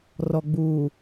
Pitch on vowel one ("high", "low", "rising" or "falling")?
low